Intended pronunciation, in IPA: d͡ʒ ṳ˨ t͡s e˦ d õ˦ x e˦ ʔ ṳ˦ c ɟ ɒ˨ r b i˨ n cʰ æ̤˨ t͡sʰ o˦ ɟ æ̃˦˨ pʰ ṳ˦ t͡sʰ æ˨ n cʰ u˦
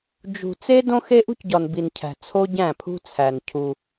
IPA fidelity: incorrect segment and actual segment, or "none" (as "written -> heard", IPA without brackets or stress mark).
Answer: r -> n